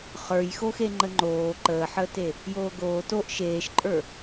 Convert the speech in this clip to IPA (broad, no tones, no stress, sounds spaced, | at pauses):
χ ə˞ j x o x e ŋ͡ǃ ə ŋ͡ǃ oː ǃ əː ħ əː t e | j oː ɡ oː t o ʔ ʃ eː ʃ ǃʼ ə˞